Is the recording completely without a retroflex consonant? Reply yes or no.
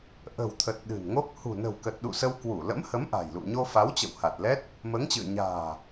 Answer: yes